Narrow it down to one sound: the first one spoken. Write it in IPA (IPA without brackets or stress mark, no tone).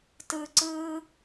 t